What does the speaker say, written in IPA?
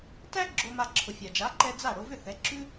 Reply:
t æ˥ ɡ͡ǁ o˧ m a˧ ǁʰ ʊ˩ fʲ a˩ d͡ʒ a˩˥ ǃ ɛ˧ d͡z a˥˩ ɽ o˧ v ʏ˥˩ θ ɛ˩˥ ǁ ʉ˥

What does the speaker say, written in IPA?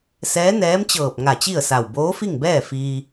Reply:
s ɛː˧˥ n ɛː˧˥ m t͡ɕ ɤː˧˩ p̚ ŋ a˧˩ t͡ɕ i˥˨ ə̯ s a˧˩ w b oː˧˥ f i˥˨ ŋ b ɛː˥˨ f iː˧

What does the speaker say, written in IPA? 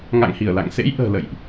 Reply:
ŋ a̰˧˨ ŋ h i˧˩ ə̯ l a̰˧˨ ŋ s ḛ˧˥ j ʔ ə̤ː˨˩ l ə̰˧˨ j ʔ

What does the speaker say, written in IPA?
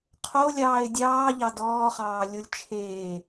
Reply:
qʰ o lʲ ɑː ɪ̯ dʲ ɑː ʎ ɑ d ɔː χ ɑː lʲ o lʲ t͡ʃʰ eː

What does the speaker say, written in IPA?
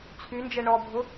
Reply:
t͡sʰ y n d͡ʒ ɛ ɳ ɔ bʱ ʊ

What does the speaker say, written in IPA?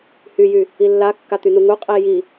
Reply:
h y j y | i lː a kː a t̪ y n u ŋ u qʼ i j i

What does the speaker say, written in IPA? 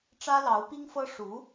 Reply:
ʈ͡ʂ ä˥ l ɑ˧˥ ʊ̯ p i˥ ŋ f ɤ˥ ʂ u˧˥

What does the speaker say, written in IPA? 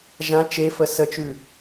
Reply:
ʒ ã t͡ʃ e f ə s ə t͡ʃ ʉ

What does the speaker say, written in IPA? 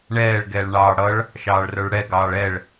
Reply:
ɳ ɛː ɭ ɡ ɛː ɭ ɳ ɑː ɽ ʌ ɭ | ʃ ɑː ɭ r ə˞ ɭ ɽ ɛ ɡ ɑː ɭ ɛ ɭ

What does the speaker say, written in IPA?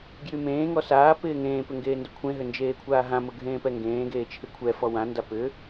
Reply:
ɡ j y m ẽː ŋ ɔ s aː p ɪː ŋ ẽː p ʏ ŋ ɡ eː n d ʊ kʷʰ ẽ ɦ ʏ n d͡ʒ eː kʷʰ aː ɦ ã m ʊ ɡʱ ẽː p ɛ ŋ ɡ ẽː ɡ eː t͡ʃʰ ɪ kʷʰ ɛ f ɔ w ã n d a p ʏ

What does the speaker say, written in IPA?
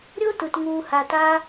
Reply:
ɾʲ o˦ t ɯ˨ t ŋ uː˨ h a˨ t a˧

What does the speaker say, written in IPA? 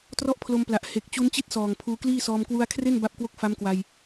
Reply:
t r ɔ˥˩ ʔ pʰ l o˧ m p l a˨˩ ʔ h e˨˩ k̚ t͡ɕ u˦˥ n t͡ɕ i˥˩ t̚ s ɔː˨˩ ŋ pʰ uː˧ k l iː˥˩ s ɔː˧ m k w u˧ a̯ kʰ r e˥˩ n b a˥˩ p̚ k w o˥˩ k̚ f a˦˥ m k w a˧ j

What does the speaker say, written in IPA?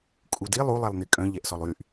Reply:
kʼ u d i lˠ u lˠ ɛ lˠ n̪ i kʼ œ̃ ʎ ɛ ʔ s ɔ lˠ y ʔ

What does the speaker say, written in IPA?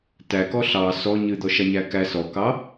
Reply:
t æ k ɔ ɬ ɑ s ɔ ɲ ɨ d̪ ɔ ʃ a ɲ æ k æ s ɔ k ɑ

